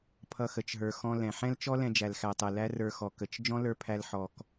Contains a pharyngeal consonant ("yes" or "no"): yes